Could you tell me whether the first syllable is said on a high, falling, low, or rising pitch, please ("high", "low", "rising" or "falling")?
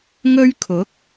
high